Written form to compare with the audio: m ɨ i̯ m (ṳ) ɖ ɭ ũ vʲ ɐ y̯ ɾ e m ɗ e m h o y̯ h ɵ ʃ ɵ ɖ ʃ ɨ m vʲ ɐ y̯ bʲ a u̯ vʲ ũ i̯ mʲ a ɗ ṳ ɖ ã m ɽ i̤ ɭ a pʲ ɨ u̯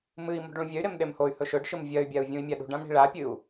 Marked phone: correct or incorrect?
correct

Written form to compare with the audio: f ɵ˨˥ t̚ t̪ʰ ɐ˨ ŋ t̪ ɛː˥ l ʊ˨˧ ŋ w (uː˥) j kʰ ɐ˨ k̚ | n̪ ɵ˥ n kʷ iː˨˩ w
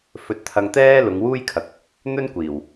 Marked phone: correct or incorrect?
correct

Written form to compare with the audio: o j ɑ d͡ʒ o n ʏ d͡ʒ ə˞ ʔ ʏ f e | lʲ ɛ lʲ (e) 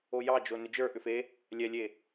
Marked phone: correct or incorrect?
correct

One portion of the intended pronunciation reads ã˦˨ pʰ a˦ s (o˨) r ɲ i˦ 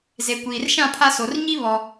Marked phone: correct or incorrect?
correct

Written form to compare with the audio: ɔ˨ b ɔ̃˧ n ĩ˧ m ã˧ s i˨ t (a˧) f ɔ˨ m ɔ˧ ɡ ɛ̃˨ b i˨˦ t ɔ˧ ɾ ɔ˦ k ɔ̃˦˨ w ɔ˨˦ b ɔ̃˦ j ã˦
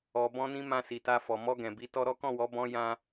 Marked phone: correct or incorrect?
correct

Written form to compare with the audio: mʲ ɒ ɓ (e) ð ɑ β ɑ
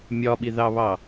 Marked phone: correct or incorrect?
incorrect: i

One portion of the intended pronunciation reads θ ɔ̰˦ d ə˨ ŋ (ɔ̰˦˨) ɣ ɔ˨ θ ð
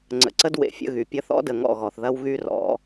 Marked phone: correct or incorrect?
correct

